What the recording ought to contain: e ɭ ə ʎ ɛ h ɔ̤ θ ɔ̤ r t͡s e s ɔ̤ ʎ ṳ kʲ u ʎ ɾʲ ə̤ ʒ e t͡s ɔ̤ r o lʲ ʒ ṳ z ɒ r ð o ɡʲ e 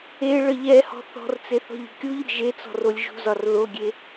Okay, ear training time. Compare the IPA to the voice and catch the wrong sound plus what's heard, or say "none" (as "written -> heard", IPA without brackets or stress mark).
s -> θ